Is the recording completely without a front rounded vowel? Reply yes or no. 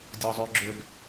no